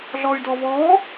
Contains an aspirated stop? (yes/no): no